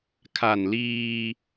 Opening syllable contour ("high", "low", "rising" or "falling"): low